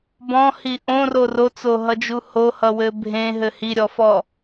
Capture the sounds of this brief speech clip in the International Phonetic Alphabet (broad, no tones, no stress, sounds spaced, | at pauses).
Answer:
b ɔ̃ h i ʔ õ r o r o t͡s o ɦ ʌ d͡ʒ u h o h ʌ w ɘ bʱ ẽ ɦ ɘ h i ɾʲ ɔ f ɔ